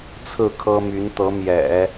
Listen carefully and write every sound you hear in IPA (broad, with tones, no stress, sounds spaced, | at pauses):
t͡sʰ ɹ̩˥˩ kʰ ɤ˥ m y˧˥ n t̪ ɤ˧˥ m j ɛ̰˨˩˦